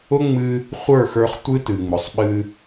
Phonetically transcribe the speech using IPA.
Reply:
ʊ˦ŋ͡mɨ˧ | χʷə˞˦˨xə˞˧χ tʷɨ˦tɨ˨ŋ͡mʊ˨sˤɓɨ˧

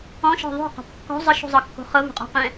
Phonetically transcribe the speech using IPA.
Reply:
ɔ̃ʃɔ̤ ðˤo̤qɔ̤p kːɔ̤ zˤəʃṳzˤɤkːo̤ χɤvṳqʼɔ̤qɛ̃

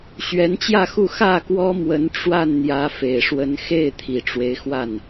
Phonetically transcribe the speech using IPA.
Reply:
ɕɥɛ˨˦nt͡ɕjä˥˨xu˥˨ xä˥˨kwɔ˦ mwə˨˦nʈ͡ʂwa˥˨n n̪jä˨˦fe˨˩ɪ̯ ʂwə˨˦n xe˥˨ɪ̯ t̪ʰi˨˩ʈ͡ʂwe˦ɪ̯xwa˥˨n

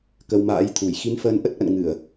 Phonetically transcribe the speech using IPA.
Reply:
kə˧wma̰ː˧˥jt̪ʰu˧˩j xi˨˦nfəː˨˦nʔə˦˥t̚ʔə̰˧˨n ŋɨ˧˩˨ə̯

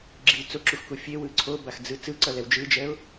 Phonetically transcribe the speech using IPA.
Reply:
ɡ͡ǁi t͡soǁuxku fʲewɯ ǀʰobaxd͡zɯ t͡sɯǀʌlɛw d͡ʒɯd͡ʒɛʊ̯

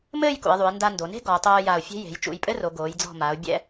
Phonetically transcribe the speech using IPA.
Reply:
mɘː˥˧jkṵ˩˧ɪ̯ðˤu˩˧ɪ̯ nda˧ndo˩˧ne̤˥ ɡɔ˩˧ʊ̯ tˤoː˧ ja˧˩ʊ̯fʲe̤˥ je̤˩˧jt͡ʃṵ˧˩jpʼɘ˥ro˩˧ ɡoː˩˧jd͡zɔ̤˧˩ma˩˧ʊ̯ bʲɛ̰˧

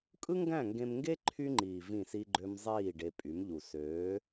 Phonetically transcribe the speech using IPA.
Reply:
kʼɯ˦ŋɡæ̃˦˨ŋɡẽ˧mŋɡe˦ ǃʰy˦ŋ͡ǃiː˨ vĩ˦˨si˦ɡ͡ǃø˦m zˤiː˦˨ɖe˧pʼy˨˦mʎu˨ søː˨˦

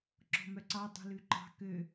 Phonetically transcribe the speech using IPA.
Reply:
ǁɔ̤mœǀɑ dˤṳlʉǃɑ̤ kø

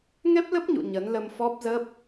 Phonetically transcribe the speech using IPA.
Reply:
ŋɛ˦˥p̚lə˦˥p̚ɲṵ˧˨ ɲə˨˦nlə˧mfɔ˦˥p̚zə˦˥p̚

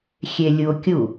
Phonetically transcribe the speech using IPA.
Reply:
xʲelʲuo̯kʲu

